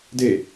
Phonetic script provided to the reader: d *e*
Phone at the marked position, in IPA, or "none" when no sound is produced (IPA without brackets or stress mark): e